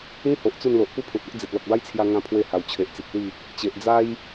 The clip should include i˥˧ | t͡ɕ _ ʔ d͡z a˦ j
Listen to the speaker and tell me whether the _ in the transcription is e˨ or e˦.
e˨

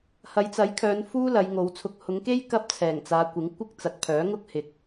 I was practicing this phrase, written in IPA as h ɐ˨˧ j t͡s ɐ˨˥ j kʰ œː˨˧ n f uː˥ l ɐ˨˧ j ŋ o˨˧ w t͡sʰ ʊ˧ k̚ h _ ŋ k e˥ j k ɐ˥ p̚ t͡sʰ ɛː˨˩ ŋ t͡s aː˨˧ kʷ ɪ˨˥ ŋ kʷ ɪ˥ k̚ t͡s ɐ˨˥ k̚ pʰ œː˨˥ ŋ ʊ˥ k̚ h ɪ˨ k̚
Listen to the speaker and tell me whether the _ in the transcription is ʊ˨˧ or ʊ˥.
ʊ˨˧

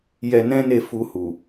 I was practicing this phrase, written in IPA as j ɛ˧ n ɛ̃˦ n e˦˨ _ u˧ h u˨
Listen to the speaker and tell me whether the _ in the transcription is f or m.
f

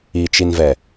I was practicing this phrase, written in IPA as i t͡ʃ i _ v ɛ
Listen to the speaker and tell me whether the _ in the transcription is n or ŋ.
n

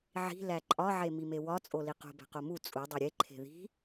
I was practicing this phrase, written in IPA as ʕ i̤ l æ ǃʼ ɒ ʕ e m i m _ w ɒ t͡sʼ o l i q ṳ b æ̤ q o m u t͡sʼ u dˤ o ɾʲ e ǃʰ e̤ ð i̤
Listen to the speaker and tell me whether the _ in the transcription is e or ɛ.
e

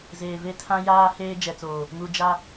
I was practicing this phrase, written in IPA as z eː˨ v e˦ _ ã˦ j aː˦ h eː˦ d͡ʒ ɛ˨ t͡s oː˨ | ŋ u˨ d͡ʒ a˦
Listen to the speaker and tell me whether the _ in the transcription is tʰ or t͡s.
tʰ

